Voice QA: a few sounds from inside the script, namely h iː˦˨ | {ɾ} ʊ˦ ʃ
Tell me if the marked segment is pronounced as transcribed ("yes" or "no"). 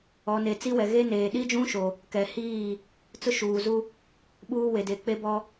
no